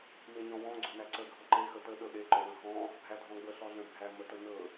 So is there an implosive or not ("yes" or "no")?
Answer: yes